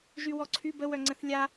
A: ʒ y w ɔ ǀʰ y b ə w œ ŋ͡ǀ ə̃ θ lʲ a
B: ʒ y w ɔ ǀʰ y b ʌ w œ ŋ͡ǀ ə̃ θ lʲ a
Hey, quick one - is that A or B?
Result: A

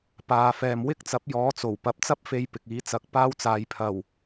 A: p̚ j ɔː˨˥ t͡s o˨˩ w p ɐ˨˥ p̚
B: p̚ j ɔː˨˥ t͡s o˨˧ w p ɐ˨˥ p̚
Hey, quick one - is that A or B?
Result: A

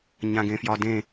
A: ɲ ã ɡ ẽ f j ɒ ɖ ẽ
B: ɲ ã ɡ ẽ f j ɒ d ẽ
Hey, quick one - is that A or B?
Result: B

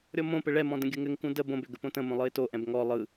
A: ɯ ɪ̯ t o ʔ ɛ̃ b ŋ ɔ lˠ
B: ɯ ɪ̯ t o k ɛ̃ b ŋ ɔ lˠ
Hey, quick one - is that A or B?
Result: A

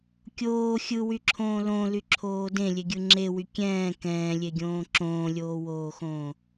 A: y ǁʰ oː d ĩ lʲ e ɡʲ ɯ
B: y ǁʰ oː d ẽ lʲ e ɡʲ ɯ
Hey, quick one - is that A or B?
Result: B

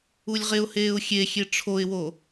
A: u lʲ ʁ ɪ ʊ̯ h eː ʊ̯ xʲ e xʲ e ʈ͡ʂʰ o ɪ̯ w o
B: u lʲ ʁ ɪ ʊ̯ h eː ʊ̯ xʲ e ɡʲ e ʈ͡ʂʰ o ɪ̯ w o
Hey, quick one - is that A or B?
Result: A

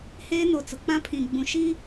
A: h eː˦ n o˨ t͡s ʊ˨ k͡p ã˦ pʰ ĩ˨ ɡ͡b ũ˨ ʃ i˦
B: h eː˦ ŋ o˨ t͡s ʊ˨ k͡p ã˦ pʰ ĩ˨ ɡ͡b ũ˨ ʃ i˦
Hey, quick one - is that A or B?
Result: A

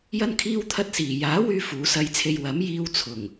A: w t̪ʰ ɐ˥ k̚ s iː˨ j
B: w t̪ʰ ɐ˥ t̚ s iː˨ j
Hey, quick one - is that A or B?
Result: B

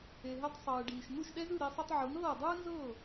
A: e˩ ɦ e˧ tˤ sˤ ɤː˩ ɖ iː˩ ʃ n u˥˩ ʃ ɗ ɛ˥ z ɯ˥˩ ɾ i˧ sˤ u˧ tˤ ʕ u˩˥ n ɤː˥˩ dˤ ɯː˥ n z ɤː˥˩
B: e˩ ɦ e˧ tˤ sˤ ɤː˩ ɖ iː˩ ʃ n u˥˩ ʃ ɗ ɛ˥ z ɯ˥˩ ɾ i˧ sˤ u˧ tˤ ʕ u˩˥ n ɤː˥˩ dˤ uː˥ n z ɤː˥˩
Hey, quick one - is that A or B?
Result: A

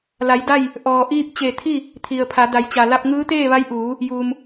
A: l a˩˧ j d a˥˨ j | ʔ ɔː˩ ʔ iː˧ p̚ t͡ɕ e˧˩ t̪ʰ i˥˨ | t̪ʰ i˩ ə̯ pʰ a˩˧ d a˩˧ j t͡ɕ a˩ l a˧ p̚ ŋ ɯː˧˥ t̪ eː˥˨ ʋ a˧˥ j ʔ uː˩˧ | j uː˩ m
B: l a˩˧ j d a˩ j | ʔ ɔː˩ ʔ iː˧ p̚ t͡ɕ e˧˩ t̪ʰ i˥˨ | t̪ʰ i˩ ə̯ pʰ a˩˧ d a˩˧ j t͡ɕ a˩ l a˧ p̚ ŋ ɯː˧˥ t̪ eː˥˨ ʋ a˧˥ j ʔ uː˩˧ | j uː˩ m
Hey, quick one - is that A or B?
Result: A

